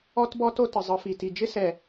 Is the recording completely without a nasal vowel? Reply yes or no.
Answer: yes